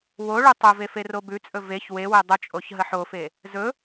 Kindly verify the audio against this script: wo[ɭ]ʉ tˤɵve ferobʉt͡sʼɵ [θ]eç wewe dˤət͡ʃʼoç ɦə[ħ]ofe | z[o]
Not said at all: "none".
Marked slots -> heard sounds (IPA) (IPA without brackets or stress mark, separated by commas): ɭ, v, ħ, ɵ